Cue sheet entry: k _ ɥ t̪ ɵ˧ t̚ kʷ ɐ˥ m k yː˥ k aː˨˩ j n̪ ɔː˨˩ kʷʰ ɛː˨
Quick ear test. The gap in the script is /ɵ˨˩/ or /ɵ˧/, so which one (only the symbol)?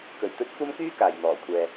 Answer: ɵ˨˩